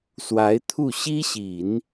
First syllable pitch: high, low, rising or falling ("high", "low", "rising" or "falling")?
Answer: rising